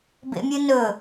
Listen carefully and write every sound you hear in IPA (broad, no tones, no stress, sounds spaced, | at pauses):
b ḛ mʲ ɨ n ɵ